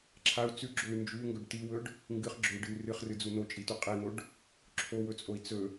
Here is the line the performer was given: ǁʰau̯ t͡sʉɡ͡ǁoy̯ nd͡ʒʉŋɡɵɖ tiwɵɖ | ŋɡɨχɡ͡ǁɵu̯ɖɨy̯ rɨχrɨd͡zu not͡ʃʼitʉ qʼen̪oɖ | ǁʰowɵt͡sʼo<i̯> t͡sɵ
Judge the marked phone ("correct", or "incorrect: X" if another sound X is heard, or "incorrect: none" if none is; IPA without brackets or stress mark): correct